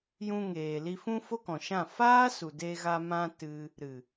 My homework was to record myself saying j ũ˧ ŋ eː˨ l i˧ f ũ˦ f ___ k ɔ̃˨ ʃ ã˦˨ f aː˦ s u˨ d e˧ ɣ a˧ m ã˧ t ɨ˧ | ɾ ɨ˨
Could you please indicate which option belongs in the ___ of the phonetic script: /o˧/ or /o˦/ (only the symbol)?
o˦